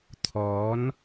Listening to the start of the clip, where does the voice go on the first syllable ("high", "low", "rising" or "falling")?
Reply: rising